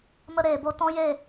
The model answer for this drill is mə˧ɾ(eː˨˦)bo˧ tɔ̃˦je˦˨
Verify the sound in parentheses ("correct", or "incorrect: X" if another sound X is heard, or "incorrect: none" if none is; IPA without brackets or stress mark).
incorrect: eː˨